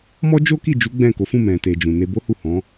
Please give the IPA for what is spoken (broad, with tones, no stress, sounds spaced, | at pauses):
m ɔ˦ d͡ʒ o˦ k i˦˨ d͡ʒ u˨˦ ɡ͡b ɛ̃˦˨ k o˨˦ f ũ˦˨ m ɛ̃˨ t e˨ d͡ʒ ũ˨ n e˧ b o˦ h u˦˨ h ɔ̃˨˦